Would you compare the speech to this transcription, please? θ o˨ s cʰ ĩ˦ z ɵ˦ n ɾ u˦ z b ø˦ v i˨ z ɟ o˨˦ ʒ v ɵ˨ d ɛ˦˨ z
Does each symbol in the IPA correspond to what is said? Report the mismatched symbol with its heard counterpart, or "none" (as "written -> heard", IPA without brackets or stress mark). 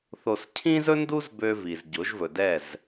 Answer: ɾ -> d